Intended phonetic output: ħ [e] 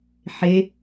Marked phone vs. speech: correct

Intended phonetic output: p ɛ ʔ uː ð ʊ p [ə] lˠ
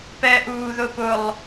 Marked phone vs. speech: incorrect: ʊ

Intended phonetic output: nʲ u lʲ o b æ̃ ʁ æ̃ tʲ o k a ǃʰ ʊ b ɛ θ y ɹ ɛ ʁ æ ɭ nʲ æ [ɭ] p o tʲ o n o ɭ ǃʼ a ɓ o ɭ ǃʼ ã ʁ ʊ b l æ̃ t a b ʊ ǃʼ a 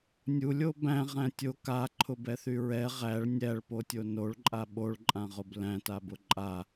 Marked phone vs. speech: correct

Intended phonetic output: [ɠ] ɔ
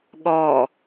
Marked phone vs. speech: correct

